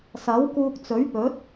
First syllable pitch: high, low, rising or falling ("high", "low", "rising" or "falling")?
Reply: rising